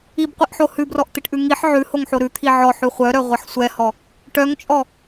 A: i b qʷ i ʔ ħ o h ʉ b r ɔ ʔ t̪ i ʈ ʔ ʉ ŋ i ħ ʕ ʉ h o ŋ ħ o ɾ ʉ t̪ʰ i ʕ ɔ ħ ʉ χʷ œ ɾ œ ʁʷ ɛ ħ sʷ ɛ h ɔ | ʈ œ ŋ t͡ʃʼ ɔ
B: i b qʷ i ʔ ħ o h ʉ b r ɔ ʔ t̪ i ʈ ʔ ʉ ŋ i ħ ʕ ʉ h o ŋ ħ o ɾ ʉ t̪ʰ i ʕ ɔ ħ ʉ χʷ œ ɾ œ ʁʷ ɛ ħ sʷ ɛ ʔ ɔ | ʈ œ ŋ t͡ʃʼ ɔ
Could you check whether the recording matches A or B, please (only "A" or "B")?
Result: A